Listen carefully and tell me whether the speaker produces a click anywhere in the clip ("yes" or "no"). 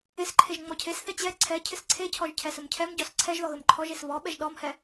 yes